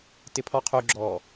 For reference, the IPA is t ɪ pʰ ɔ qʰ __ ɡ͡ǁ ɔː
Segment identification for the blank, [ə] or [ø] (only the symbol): ø